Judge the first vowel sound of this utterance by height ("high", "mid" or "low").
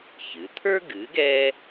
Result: high